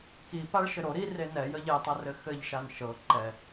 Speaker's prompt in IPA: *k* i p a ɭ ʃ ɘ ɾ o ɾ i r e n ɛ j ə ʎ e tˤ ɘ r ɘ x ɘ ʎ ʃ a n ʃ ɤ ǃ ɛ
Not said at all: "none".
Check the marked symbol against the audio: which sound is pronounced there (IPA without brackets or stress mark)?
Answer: k